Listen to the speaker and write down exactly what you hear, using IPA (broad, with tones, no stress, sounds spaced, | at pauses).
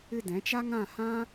ɨ˦ d ɛ̃˨˦ t͡ʃ a˦ ŋ ã˦˨ h ã˦